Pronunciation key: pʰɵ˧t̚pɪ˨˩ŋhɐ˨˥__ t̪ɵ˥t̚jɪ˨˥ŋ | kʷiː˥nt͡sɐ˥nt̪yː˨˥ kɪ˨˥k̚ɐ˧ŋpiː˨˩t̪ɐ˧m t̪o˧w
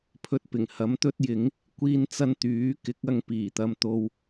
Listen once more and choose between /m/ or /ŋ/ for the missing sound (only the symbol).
m